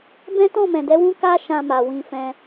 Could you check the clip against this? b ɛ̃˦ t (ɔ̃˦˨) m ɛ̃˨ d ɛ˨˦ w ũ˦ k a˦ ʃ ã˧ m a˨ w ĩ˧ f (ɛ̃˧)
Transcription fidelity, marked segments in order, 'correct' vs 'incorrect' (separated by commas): correct, correct